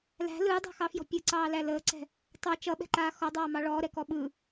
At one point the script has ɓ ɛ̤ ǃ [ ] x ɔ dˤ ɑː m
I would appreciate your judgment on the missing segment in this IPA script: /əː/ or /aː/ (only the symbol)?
aː